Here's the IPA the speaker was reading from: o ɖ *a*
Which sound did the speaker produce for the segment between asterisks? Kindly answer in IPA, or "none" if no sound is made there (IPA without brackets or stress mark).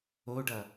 ʌ